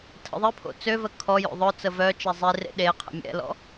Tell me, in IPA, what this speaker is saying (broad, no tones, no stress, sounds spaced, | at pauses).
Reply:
tʰ ə̰ ðˤ i pʰ o̰ t͡s ø v ə kʰ ɔ j o̰ ðˤ œ t͡s ə v œ t͡ʃ ɛ zˤ i r ḛ ɗ e qʰ ə̰ mʲ ɛ̰ l ɔ̰